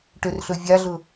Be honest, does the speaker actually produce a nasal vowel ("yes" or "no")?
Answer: no